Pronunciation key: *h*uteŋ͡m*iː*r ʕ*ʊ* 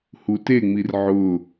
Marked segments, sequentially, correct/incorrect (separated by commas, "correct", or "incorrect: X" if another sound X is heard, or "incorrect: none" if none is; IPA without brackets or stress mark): correct, incorrect: i, correct